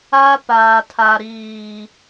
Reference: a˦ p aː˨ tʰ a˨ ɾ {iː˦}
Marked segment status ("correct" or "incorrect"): incorrect